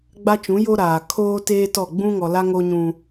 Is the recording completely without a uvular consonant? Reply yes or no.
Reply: yes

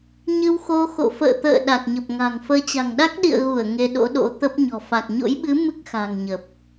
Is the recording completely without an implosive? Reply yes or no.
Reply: no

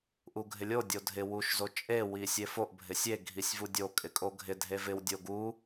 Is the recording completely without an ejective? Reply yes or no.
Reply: no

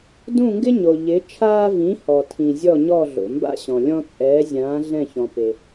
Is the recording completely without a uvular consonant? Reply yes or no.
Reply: yes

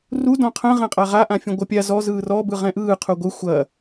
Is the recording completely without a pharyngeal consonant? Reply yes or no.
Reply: yes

